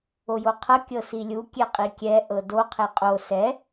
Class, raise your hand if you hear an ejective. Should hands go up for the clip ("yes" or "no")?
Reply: yes